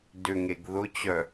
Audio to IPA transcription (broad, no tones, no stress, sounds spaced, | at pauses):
d ʏ ŋ e ɡ ð ʊ t͡ɕ œ